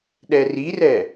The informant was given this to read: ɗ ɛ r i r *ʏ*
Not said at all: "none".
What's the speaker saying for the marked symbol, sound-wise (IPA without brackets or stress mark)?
ɛ